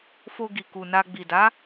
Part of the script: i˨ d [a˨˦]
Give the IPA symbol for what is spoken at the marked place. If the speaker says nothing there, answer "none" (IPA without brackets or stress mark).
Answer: a˨˦